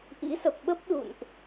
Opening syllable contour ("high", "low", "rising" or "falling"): rising